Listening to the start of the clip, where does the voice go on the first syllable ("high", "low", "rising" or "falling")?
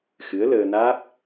rising